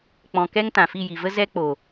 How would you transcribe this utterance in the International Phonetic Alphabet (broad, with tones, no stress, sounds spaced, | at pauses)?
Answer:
k͡p ɔ̃˨ k ɛ˦ ŋ t ã˨ f i˦˨ j i˨ v ə˦ z ɛ˦ k͡p o˨